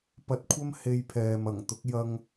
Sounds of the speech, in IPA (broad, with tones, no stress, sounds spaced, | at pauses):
p ɐ˧ t̚ kʷʰ ɐ˥ m h e˧ j pʰ ɛː˨ m ɐ˨˩ ŋ t̪ ʊ˨˥ k̚ j ɐ˧ ŋ